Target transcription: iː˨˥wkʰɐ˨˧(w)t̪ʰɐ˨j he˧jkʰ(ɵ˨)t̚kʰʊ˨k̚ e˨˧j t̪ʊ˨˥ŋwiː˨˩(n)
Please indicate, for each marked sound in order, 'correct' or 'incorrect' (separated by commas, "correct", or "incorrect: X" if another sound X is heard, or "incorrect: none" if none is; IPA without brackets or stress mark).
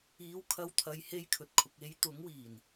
correct, correct, correct